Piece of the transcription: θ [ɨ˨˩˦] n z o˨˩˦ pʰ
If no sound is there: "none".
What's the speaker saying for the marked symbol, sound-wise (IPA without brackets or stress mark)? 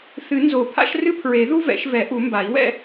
ɨ˨˩˦